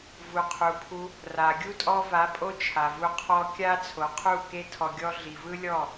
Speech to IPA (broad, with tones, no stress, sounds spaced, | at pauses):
v u˨ qʰ u˨ pʰ u˧ | r a˨ ɡʲ u˦ tʼ ɔ˧ v a˨˦ pʼ o˧ t͡ʃʰ a˨ v u˧ qʰ ɔ˦ kʲ a˦ t͡sʰ o˨ qʰ u˦˨ k e˦ tʰ ɔ˧ ɡʲ ɔ˦ ɮ i˨ v ɯ˦ lʲ ɔ˦˨